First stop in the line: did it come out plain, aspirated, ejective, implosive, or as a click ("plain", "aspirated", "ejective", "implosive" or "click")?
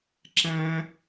click